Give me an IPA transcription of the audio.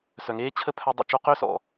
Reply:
s œ˨ ŋ eː˦ t͡ɕʰ ə˦ pʰ œ˦ dˤ ɛ̰˧ t͡ʃ o˦ q ø˦ s ɔ̰˨

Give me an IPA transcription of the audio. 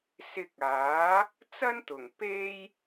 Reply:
s ɪ˧ k̚ aː˨˥ | t͡s ɐ˥ n t̪ ʊ˨˩ ŋ p e˥ j

